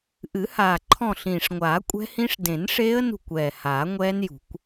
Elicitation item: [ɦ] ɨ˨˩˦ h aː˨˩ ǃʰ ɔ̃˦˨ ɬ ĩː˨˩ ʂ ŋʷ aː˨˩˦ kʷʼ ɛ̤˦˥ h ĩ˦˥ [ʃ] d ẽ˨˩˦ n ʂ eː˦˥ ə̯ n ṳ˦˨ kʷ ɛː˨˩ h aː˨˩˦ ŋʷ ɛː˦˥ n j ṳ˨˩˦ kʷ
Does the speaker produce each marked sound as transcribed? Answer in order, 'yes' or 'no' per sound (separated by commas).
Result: no, no